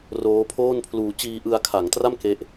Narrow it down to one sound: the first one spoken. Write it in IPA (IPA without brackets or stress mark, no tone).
r